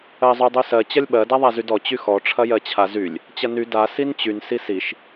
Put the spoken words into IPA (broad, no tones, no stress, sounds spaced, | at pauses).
ɜ zˤ y dˤ y s ɜ t͡ɕ ɐ lʲ ɓ ɜ d a ðˤ a z y d ɔ t͡ɕ y x ɔ ʈ͡ʂʰ ɐ j ɜ t͡ɕʰ a z y lʲ | t͡ɕ ɐ n y d a s i n t͡ɕ y n s i s i ʃ